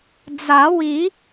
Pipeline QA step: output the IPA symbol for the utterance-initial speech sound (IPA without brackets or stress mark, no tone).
d͡z